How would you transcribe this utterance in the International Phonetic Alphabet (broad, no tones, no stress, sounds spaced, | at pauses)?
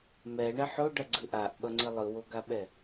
m ɛ ɳ ɛ ħ o ɖ ʌ ɡ͡ǀ ɯ ʔ a ʔ ɓ ʌ ŋ͡ǀ i lˠ ɯ w o ɡ a ɓ ɛ